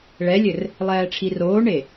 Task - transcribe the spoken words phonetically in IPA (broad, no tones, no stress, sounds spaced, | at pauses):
ɭ ɛ lʲ ɘ r | lˠ ɛː ʈ͡ʂʰ i r oː ɳ e